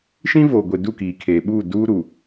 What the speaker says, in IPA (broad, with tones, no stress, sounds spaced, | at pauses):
ʃ ĩ˦ v oː˨ ɡʷ e˨ d u˦˨ k iː˨ kʰ eː˨ ɓ uː˦˨ d uː˦ ɾ u˨